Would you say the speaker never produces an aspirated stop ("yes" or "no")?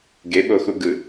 yes